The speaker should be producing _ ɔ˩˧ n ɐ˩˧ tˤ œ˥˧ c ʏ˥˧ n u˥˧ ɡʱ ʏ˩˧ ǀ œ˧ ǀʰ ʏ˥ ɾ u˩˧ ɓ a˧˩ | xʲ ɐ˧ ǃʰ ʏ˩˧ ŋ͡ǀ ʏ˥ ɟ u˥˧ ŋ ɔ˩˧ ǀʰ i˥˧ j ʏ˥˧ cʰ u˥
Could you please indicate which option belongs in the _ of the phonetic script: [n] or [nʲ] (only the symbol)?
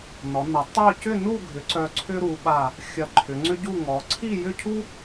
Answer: n